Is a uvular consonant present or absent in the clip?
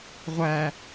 present